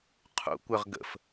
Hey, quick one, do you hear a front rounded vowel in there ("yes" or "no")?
yes